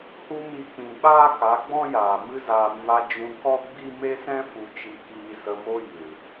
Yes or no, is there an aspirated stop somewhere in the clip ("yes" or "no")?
no